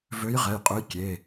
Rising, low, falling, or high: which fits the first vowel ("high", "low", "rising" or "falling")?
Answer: rising